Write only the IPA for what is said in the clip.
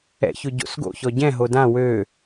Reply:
ɛ̰ ç ʊ ɟ o̰ s ɡ o̰ ç ɔ ɟ ɛ̃ ɦ o d ã w ø

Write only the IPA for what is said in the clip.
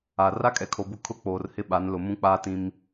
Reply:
a˨ r a˦ kʼ ɛ˨ kʰ o˨ b ʊ˦˨ kʰ ʊ˦˨ k͡p oː˨ r h ɪ˦ ɓ a˨˦ n l ʊ˨ m ũ˦ k͡p aː˦ t ĩ˦ m

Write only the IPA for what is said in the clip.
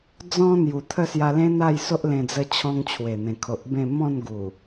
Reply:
d͡z ɔ̃˦ n̪ j u˨˩ t̪ʰ ə˥˧ s j a˧ l ẽ˦ n̪ a˥˧ j s o˦ ʔ l ẽ˧ d͡z ə˧ t͡ɕʰ ɔ̃˧ ŋ t͡ɕʰ w e˨˩ n̪ ẽ˨˩ kʰ o˨ ʔ b ẽ˥˧ m ɔ̃˥˧ n ɡ u˨˩

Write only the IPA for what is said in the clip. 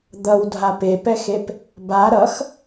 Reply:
d̪ ʌ w dʱ a p e p ɛ x e p | b a ɾ ʌ x

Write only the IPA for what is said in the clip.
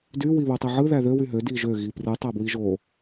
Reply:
d y w i β u tˤ i ʕ ɯ ð æ ð ø w y ɦ ø d i ʒ ø ɣ i p r ɯ tˤ æ b w i ʒ o

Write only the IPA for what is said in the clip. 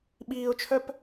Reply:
ɓ iː ʊ̯ t͡ʃʰ œ p

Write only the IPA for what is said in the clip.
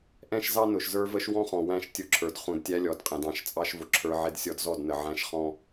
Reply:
ʔ ɛ̃˦ ʃ z ɑ˦ n ʊ˨ ʃ z ə˞˦ v ə˦ ʃ w ɔ̃˦ χ ɔ̃˨ w æ̃˦˨ ʃ tʲ ʊ˦ ǁʰ ə˞˨ d χ ũ˨ d tʲ æ˦ lʲ ɔ˨ d qʼ ɛ̃˨ d ɑ̃˨ ʃ t͡sʼ ɑ˦ ʃ v ʊ˨ ǁʰ ə˞˦ ʕ ɪ˦ d sʲ ɔ˦ d z ɔ˦˨ d n ə˨ ʕ æ̃˦ ʃ χ ɔ̃˦

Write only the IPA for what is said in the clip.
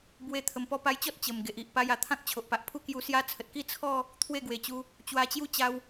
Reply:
b w e˧ t̪ʰ ə˨˩ m p ɔ˧ p a˧ j t͡ɕ ɔ˦ t̚ t͡ɕ ə˨˩ m ɡ e˨ ʔ i˨ ʔ p a˧ j a˨˩ t̪ʰ ã˦ k̚ t͡ɕʰ o˨ ʔ p a˨ ʔ pʰ u˥˧ k j u˧ s j a˦ t͡sʰ ə˨ t̚ k i˥˧ t͡sʰ ɔ˥˧ | t̪ʰ w e˥˧ ɡ w e˨˩ t͡ɕ u˧ | t͡ɕ w a˧ t͡ɕ j u˦ t͡ɕ a˧ w

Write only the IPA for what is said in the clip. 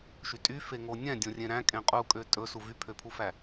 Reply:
ʃ y tʼ y f e ŋ o nʲ ɛ̃ dʲ õ rʲ ẽ ɾ æ̃ kʼ ẽ qʼ u kʼ ø tʼ ɵ s u v y pʰ ø pʰ u f æ

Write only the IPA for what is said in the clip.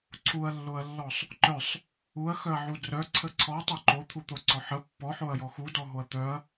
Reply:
ǀʰ u ɐ̯ lː o ɐ̯ lː ɔ sˤ | ǃ œ sˤ | u ɐ̯ x œ ɐ̯ ʕ u d r œ ǀʰ ə ǀʰ ɔ tˤ œ ǃ o t̪ʰ u t̪ o ǀ ɔ ħ ə pː ɔ ħ o ɐ̯ j ɔ x u d ɔ ɦ o ɐ̯ t̪ œ ɐ̯

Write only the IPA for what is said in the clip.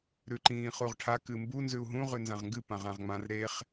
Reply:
ɾ ʉ ǃ ĩː χ u ʁ ʈʰ a k ɨ m b u n z ʉ u̯ ɦ ũ ʁ ʉ n z ã ʁ ŋ ɡ ɨ p ã ʁ ã ʁ ŋ͡m ã r ɾ e χ

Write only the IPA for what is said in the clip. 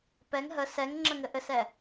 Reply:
p ɛ ŋ ɦ ə s ɛ ŋ ŋ͡ǁ ə ŋ ɘ ʔ ɘ s ɛ

